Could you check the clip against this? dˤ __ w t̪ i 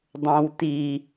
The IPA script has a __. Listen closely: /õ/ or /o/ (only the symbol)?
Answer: õ